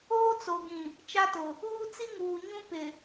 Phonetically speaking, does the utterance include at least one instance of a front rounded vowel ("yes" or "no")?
no